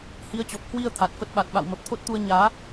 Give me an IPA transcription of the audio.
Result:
h i˨˦ ə̯ t͡ɕ ɔ˨˩ p̚ h w i˧ ə̯ t̪ʰ a˨˩ t̚ f ə˦˥ t̚ ɓ a˨˩ t̚ ɓ a̰˧˨ w m ə˨˩ p̚ t̪ʰ o˦˥ t̚ t̪ u˧ ə̯ ɲ aː˨˦

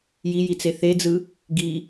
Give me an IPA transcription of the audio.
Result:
j i j i t͡s e θ e d͡z ɯ | ɡ i

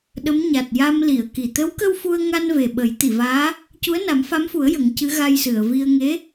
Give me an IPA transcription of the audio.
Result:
ɗ ə˧˥ m ɲ a˨˩ t̚ j a˧ m l i˨˩˨ ə̯ k i˨˩ t̪ ə˧˥ w k ə˧ w f u˧ ə̯ ŋ a˧ n v e˨˩ ɓ ə˨˩˦ j t̪ i˨˩˨ v aː˧˥ | c u˧˥ ə̯ n a˨˩˦ m f a˧˥ m f u˨˩˦ ə̯ j ə˨˩˦ ŋ c ɨ˧˥ ɣ a˧ j s ɨ˨˩˨ ə̯ v i˧ ə̯ ŋ e˧˥

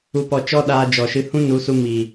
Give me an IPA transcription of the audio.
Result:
u˨ p ɔ˨ t͡ʃ ɔ˦ ɗ aː˧ d͡ʒ ɔ˨ ʃ ɨ˧ h ũ˦ n u˨˦ s u˧ m iː˨

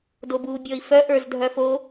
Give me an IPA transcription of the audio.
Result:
d o b uː bʲ ɔ i̯ f œ ʔ ə˞ z dʱ œ f o

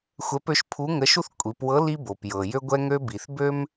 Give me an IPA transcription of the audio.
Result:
xʷ ɛ˧˥ p ø˧˥ ʃ pʰ u˧˥ ŋ ə˧˥ ʃ u˥ θ kʷʼ i˩˧ p w ɤ˧˥ l i˧ b o˩ p j ɤ˩ j ø˧ ɡʷ ɛ˧ ŋ ø˧ b i˩ θ b ø˥ m

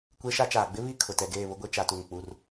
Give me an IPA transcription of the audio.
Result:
kʷ e˦ ʃ a˦ t͡ʃ aː˨ ɡ͡b ɪ˦ β i˦˨ kʰ ʊ˨ t ɛ˨ ɡ eː˦˨ β ʊ˦ ɡʷ e˦ t͡ʃ a˦ t u˦˨ ŋ k͡p u˦ r

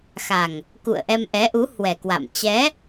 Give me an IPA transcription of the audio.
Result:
x a˨˩ ŋ | k ṵ˧˨ ə̯ ʔ ɛ˧ m ʔ ɛ˨˦ ʔ u˨˦ h w ɛ˨˩ k w a̰˧˨ m t͡ɕ ɛ˨˦

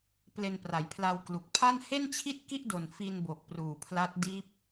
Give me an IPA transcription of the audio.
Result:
p l e˧ n p r a˩˦ j pʰ l a˧ w k l u˨˩ k̚ pʰ a˥˩ n h e˥˩ n t͡ɕʰ i˥˩ t̚ k i˥˩ ʔ d o˨˩ n f i˧ n b o˨˩ k̚ p r uː˨˩ pʰ l a˦˥ t̚ d iː˦˥ p̚

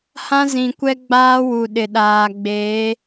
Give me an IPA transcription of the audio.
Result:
h ã˦ z ĩ˨ kʷ ɛ˦ ɡ͡b aː˦ w u˨ ɗ ɪ˨ ɗ aː˨ ɡ͡b eː˨˦

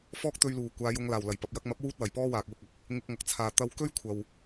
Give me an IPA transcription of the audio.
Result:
f ɔː˥ k̚ t̪ ɵ˧ ɥ l uː˨˩ kʷ aː˨˧ j ʊ˨˧ ŋ l aː˨˩ w l ɐ˨˩ j p ɐ˨ p̚ j ɐ˧ k̚ m ɐ˨˥ p̚ w uː˥ t̚ w ɐ˨˩ j p ɔː˥ w aː˨ k̚ w ʊ˧ k̚ ɐ˨˥ k̚ | ŋ ɪ˧ k̚ ŋ ɐ˨˥ k̚ t͡sʰ aː˨ t̪ ɐ˧ w k ɵ˥ ɥ kʷʰ ɐ˨ w

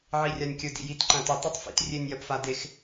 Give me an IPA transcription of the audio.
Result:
ʕ i rʲ a nʲ kʲ ɵ d ḭ j i t ǃ ɐ̃ t ɵ tˤ ɵ tˤ f ḭ t rʲ e nʲ j ɐ p f a d e x

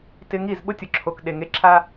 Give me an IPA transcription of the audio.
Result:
t ɪ˧ ŋ i˦˨ z ɓ ʊ˦ tʲ ʊ˨ ǁʰ o˨ k ɗ e˨ ŋ e˧ ǁʰ a˧

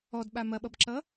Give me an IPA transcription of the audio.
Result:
ɔ d ɓ a m ɐ ɓ ʌ b ǁ ʌ

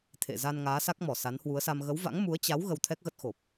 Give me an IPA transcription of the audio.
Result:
t̪ʰ ḛ˧˨ z a˧ n ŋ aː˨˦ s a˦˥ k̚ m ɔ˧˩ s a˨˦ n h w u˨˦ ə̯ s a˧ m ɣ ə˨˦ w v a̰˧˥ ŋ m u˨˦ ə̯ t͡ɕ a˨˦ w ɣ ə˧ w t̪ʰ ɛ˦˥ k̚ ɣ ə˦˥ t̚ x o˨˩ p̚

